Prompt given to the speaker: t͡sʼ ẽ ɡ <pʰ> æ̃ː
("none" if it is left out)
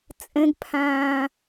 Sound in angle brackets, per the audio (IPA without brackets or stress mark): pʰ